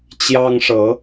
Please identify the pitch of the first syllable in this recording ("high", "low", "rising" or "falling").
high